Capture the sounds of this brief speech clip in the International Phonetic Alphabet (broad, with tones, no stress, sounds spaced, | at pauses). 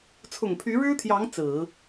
t͡sʰ ʊ˨˩ ŋ pʰ y˧˥ ɻ ɻ̩˥ t̪ʰ j ɑ˧˥ ŋ t͡s ɹ̩˨˩˦